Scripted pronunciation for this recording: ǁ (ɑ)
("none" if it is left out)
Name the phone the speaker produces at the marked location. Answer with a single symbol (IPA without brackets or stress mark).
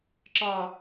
ɑ